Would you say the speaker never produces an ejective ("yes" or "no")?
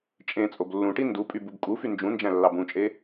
no